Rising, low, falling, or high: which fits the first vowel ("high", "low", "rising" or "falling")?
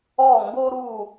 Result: falling